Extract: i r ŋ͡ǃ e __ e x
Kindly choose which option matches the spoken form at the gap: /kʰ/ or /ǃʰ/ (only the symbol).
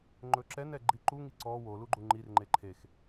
ǃʰ